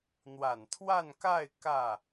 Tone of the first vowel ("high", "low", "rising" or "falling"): low